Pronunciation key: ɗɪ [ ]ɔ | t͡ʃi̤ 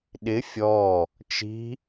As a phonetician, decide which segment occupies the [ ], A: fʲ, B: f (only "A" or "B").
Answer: A